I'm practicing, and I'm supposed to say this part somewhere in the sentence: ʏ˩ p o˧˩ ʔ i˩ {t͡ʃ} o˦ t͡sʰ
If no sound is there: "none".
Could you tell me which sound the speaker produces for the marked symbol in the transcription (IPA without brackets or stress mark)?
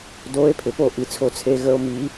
t͡sʰ